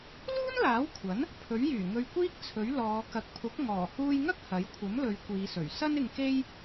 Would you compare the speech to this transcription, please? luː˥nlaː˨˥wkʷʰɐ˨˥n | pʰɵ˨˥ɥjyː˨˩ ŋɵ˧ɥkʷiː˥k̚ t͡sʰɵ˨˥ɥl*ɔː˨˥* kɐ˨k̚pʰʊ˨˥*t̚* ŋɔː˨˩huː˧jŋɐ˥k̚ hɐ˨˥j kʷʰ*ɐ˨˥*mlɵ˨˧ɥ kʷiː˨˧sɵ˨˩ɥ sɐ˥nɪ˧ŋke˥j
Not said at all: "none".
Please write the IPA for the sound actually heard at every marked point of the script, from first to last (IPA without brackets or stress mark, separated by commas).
ɔː˨˧, k̚, ɐ˨˥